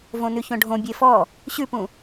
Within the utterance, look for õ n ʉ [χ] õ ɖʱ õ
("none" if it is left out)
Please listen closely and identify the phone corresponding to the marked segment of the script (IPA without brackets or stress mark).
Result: ç